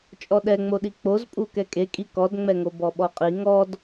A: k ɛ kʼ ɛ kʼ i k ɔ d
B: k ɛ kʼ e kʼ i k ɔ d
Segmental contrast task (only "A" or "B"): B